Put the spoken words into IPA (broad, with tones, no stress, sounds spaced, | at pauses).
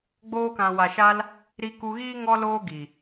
ɡ͡b oː˧ k ã˨ w a˨ ʃ a˧ l | ɾ i˧ k u˧ ɣ iː˦ ŋ ɔ˦ l oː˦ ɡ i˨